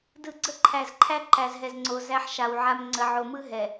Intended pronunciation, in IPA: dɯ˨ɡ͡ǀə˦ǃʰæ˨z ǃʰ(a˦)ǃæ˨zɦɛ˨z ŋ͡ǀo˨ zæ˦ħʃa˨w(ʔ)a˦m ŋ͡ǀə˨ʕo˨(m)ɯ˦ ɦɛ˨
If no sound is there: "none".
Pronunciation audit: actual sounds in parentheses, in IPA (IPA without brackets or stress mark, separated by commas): æ˦, ʕ, m